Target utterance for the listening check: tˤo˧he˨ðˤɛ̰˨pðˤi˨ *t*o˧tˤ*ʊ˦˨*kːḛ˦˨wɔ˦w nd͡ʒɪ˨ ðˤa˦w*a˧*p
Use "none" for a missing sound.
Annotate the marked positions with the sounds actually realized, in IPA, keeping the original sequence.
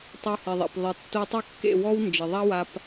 tː, ʊ˦˨, a˧

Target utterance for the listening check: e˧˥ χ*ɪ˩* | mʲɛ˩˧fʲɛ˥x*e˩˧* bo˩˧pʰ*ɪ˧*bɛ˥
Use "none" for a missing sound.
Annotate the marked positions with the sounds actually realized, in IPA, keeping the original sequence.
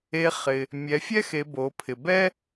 ɪ˩, e˩˧, ɪ˩

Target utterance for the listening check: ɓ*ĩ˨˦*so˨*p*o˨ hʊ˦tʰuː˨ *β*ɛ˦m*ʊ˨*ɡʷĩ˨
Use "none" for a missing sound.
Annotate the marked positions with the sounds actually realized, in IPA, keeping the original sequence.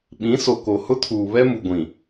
ĩ˨˦, k, β, u˨

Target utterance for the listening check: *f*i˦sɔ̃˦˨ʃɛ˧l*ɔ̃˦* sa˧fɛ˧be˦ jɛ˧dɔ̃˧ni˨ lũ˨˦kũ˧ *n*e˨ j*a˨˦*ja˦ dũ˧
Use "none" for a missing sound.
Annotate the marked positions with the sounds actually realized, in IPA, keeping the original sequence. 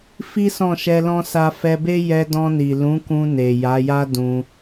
f, ɔ̃˦, n, a˨˦

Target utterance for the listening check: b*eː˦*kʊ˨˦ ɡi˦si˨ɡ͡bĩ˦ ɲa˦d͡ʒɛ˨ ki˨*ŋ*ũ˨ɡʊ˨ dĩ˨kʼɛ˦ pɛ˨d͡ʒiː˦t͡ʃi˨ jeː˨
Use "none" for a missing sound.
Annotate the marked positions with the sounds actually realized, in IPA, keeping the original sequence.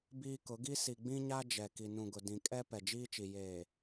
iː˦, n

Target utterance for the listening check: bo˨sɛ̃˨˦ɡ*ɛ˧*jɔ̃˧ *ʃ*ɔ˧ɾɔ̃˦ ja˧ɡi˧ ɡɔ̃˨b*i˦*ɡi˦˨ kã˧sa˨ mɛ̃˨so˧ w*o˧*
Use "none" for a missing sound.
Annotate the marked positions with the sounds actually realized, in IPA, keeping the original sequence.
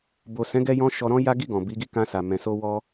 ɛ˧, ʃ, i˨˦, ɔ˧

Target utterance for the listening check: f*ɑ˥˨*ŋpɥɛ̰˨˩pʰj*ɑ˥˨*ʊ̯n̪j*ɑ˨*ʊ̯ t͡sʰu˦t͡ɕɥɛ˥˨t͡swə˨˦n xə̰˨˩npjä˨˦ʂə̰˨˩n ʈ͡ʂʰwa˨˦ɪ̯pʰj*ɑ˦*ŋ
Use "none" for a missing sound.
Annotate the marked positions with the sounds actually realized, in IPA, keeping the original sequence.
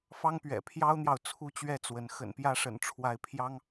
ɑ˦, ɑ˦, ɑ˨, ɑ˦

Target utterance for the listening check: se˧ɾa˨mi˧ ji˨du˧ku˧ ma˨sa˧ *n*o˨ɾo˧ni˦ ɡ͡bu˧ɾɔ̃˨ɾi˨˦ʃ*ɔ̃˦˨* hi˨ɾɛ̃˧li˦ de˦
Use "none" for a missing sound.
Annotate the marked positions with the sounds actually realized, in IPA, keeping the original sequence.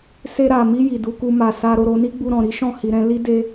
ɾ, ɔ̃˦˨

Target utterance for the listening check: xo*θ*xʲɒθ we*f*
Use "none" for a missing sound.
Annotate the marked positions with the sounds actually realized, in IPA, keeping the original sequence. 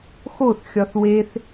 θ, θ

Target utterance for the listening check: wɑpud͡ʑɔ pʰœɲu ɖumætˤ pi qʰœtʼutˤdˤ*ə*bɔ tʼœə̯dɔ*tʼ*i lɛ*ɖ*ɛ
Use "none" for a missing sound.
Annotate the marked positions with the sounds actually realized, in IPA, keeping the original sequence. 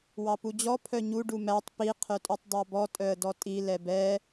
ɑ, tʼ, b

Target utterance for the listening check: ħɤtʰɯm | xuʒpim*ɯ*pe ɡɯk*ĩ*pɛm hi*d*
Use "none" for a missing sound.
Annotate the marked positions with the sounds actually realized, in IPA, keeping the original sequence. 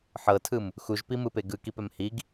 ɯ, i, ɡ

